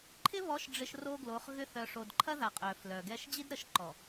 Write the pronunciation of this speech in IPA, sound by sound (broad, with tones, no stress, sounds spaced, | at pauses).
ǃʰ ɪ˦ β ɔ˨˦ ʃ ɖ͡ʐ ɪ˨ ʃ r o˦ ɡ l o˨˦ χ ɣ ʏ˦ θ œ˨ ʂ o˨ d ǃʰ ɐ˦ ð a˨ qʼ œ˨ f l œ˨ ɡ ɛ˦ ʃ d͡ʑ i˦ d ɾ ə˨˦ ʃ ǃ ɔ˨